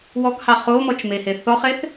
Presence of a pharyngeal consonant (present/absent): absent